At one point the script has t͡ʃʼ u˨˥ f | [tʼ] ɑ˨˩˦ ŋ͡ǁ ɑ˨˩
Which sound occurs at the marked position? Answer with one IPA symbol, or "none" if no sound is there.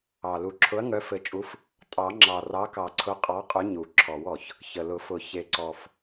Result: tʼ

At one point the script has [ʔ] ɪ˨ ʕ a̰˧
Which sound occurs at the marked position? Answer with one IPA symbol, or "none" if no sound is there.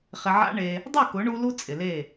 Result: χ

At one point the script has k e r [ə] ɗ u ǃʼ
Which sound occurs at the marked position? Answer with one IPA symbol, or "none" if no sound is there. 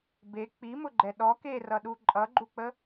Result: ʌ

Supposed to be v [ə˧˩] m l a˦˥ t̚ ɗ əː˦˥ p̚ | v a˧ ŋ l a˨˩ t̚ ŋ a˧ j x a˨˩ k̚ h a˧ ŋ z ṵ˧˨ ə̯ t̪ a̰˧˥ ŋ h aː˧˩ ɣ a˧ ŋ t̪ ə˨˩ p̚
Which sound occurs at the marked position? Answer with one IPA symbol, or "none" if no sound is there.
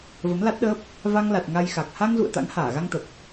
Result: ə˨˦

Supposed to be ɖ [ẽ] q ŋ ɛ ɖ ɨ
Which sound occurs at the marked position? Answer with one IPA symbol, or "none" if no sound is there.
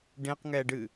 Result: ẽ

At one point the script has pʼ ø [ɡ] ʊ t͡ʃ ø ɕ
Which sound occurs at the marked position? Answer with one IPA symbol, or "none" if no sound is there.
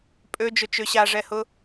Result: d͡ʒ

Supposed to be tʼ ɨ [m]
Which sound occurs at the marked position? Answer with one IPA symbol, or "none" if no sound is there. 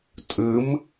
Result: m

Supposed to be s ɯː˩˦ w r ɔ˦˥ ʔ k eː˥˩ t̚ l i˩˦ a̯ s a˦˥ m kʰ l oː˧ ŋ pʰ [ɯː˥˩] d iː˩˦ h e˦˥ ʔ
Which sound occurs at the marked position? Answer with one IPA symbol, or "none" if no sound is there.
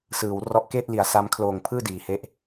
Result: ɯː˥˩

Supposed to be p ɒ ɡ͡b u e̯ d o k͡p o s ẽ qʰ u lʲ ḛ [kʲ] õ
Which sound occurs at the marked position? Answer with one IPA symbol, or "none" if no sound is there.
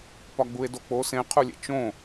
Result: t͡ʃ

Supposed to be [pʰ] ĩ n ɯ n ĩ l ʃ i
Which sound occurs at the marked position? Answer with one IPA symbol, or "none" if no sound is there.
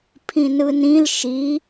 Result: pʰ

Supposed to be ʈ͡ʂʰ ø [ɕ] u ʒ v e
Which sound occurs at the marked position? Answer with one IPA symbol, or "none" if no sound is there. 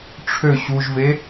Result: ɕ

